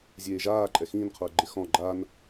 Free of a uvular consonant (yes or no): no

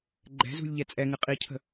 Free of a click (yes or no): no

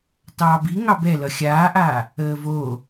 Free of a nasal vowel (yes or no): yes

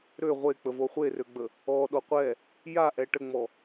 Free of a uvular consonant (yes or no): no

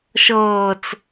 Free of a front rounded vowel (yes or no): yes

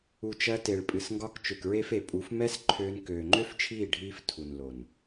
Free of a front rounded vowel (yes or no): no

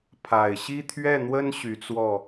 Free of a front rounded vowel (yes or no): no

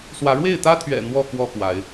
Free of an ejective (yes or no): yes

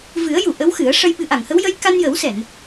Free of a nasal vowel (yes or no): yes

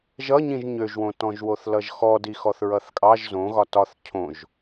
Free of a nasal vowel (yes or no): no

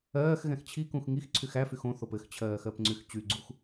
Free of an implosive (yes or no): yes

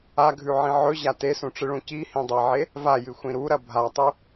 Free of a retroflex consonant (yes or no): no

